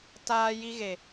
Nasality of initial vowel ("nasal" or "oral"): oral